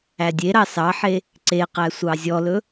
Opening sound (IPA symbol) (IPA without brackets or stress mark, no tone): æ